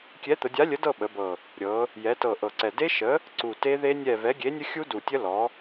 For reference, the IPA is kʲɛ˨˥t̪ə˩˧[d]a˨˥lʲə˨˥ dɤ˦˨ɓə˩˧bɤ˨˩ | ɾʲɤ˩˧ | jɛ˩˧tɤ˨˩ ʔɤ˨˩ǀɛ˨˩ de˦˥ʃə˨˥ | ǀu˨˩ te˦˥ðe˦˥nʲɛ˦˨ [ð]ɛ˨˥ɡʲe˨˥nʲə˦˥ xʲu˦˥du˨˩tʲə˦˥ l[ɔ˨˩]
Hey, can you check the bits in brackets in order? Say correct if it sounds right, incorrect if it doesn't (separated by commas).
incorrect, incorrect, incorrect